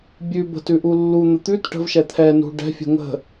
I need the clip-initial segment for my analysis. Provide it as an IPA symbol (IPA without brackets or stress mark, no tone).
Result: bʲ